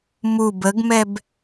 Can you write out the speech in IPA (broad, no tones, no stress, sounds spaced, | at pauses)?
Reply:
m u b ə ɡ m ɛ b